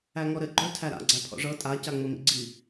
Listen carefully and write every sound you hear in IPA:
æŋɔɾɘ ɡ͡ǃɵ tʰæɾa̰ ɡ͡ǀæpʰɔ̰ʐɤ tʼa caŋ͡mɘmḭɡ͡ǀi

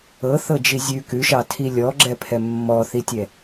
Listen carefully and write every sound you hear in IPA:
ɤθɤd͡ʒi zʲʉ kʉʃɑtʰi lʲɔɡ͡ǁɛpʰɛ mːɔθitʲɛ

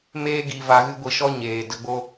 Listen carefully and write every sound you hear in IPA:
meː˦ɡi˧va˧ ɣɨ˦ɡʷi˧ʃɔ˦ ɲeː˨ də˧ɡ͡bo˦

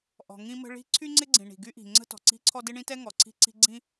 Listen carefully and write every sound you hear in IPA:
ʔɔ̤˩ ŋĩ˥mə̤˥ ɭi̤˥ ǀʰy˥ŋ͡ǀɪ˥ɡ͡ǀĩ˩ ɳi̤˩ɡy˥ʔi̤˩ ŋ͡ǀə̤˥tɔ̤˩ǀi̤˥ǀʰɔ˥ dɪ˥ɳĩ˥tɛ˥ ŋɔ˩ǀʰi̤˥ǀi̤˥ ɡ͡ǀĩ˥

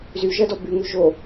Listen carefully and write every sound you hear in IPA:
zyʒɜdɔ byŋʉ ʒo

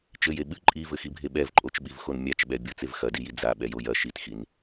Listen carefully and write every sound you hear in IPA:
t͡ʃɘje ɓɨ ǃʼivɘxibʱe ɓɛvǃʼot͡ʃɓivxon mʲat͡ʃɓɛ bʲot͡sev xɐdiji d͡zaɓɛjoj ɐ ʃitxin

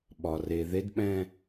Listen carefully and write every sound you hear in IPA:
ɓɒ˩re˩ ðe˧˥dɓɛ̃˦˨

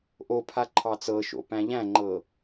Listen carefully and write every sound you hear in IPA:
ʔopʰa ǃʰɑt͡sɤʃo̰ pæ̃ʎæ̃ŋ͡ǃɤ

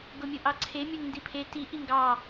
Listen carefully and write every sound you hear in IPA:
ɡomʲoʔɑǀʰe mʲoŋndipʰe ti ʔiŋɡɑ

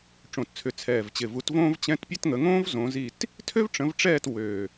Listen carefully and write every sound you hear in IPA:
ʈ͡ʂõ˨˩tt͡sʰʏ˨˩ t͡sʰɛː˨˩vt͡ɕɪ˨˩vu˨˦t võː˥v t͡ɕɛ̃˧˥˧tpʲɛ˥tŋə˨˦ ŋõː˥v zõ˨˦zi˦˨t | tʰø˥vʈ͡ʂə̃˨˦vʈ͡ʂɛː˦˨t wø˨˩

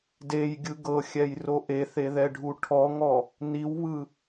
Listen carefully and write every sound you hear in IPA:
dejɡʲɯ ɡɤxʲɛjro ʔeθeðɛɖʱu ʈʰɔŋɔ | niwβɯ

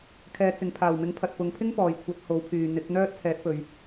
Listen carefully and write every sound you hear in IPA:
kʰɛː˨˧ t͡sɪ˨ŋpʰaː˨˩wmɪ˨˥ŋ pʰɐ˨t̚pʊ˨ŋpʰɪ˥ŋ pɔː˨jkʷʰɐ˨˥t̚ho˨˥w pʰyː˨n̪ɪ˨˥k̚n̪œː˥t̚ t͡sʰɛː˨˥t̚pɵ˨ɥ

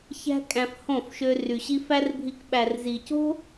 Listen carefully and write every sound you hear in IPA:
çæ̤˦kʼæ̃˧f hõ˦˨fʃø˧ ry˨ɕi˧fæ˦rbʱi˧k ɓæ˨rzi˨co̤˦

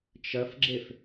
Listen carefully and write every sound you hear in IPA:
t͡ʃɐfɡ͡ǁef

